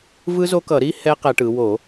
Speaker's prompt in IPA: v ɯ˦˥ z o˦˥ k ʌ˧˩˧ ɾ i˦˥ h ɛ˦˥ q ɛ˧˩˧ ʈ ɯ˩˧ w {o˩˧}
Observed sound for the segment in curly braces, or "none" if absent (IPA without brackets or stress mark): o˧˩˧